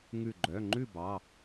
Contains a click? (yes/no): yes